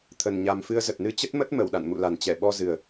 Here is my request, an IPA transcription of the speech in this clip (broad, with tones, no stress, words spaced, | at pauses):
t̪ʰə˨˩nɲa˨˩mfɨ˧ə̯zə˨˩t̚ nɨ˧t͡ɕə˦˥t̚mə˦˥t̚mə˧˩w ɗa̰˧˨nmṵ˧˨ la˨˩nt͡ɕɛ˧˩ɓɔ˧ zɨ˨˩ə̯